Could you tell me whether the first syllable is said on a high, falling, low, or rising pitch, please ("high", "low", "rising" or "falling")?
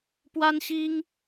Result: high